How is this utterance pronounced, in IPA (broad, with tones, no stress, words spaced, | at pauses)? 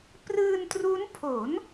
prɯː˧ntru˦˥npʰo˩˦n